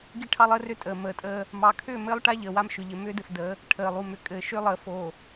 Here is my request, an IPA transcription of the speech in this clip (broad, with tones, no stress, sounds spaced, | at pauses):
ɡ i˦ ʈʰ ɑ˦ lˠ əː˦ r ʏ˦ tʼ əː˨ m əː˨ tʼ əː˦ | m ɑ˨ kʰ ʏː˦˨ m ɘː˦ lˠ ʈ a˦ ʎ əː˨ w a˦ m ʃ ʏ˨ ʎ ɘ˨ m ʏː˦ d ɘ˨ f d ə˨˦ | ʈʰ əː˨ lˠ u˨ m ʏ˨ kʼ ɘː˨ ʃ ʏː˦ lˠ əː˨ f oː˨